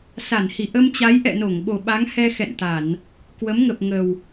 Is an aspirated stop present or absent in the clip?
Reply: absent